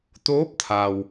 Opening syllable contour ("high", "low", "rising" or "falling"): rising